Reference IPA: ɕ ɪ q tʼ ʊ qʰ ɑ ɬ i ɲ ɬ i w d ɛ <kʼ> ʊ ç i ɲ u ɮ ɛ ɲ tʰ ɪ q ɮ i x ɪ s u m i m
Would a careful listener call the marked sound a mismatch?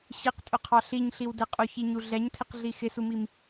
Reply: yes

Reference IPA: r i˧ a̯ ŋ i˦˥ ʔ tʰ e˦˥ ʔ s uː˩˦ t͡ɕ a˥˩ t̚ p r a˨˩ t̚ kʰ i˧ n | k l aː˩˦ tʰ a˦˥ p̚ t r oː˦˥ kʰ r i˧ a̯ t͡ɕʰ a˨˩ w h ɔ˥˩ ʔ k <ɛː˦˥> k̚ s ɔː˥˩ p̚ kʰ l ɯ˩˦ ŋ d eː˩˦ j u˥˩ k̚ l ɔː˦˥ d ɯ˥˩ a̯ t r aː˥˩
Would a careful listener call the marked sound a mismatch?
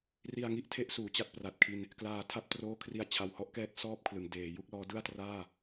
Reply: no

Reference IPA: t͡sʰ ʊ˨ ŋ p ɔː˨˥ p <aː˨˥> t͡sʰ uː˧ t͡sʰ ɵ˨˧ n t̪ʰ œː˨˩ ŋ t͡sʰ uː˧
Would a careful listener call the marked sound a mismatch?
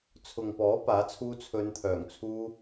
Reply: no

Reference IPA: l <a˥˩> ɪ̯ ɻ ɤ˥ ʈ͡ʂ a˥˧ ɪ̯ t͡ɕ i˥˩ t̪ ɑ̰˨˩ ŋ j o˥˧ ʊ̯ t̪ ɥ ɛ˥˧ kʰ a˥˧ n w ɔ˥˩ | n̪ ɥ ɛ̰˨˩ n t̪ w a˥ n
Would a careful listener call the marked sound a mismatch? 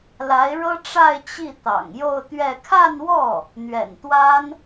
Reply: yes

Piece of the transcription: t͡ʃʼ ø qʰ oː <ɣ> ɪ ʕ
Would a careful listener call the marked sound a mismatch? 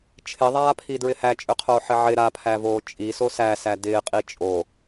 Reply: yes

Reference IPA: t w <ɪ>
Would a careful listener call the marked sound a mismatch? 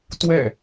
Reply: yes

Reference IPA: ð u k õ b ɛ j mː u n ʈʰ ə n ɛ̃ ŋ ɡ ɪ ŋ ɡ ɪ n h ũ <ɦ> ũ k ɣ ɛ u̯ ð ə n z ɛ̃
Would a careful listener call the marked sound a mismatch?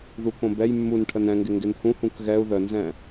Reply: yes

